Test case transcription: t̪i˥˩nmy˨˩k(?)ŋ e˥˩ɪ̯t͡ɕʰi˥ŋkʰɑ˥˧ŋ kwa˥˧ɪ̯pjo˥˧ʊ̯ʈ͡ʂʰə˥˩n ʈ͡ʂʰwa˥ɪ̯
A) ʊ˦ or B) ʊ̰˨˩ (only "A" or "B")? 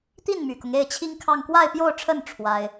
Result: A